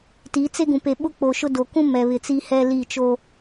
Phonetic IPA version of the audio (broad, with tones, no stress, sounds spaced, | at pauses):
t i˨˦ t͡s e˦ ɡ ũ˨ p e˨ ɓ ʊ˦ k͡p o˨ ʃ ʊ˦ d o˨ k ũ˦ m ɛ˨ β ɪ˨ t͡s i˦ h ɛ˦ l i˦˨ t͡ʃ o˦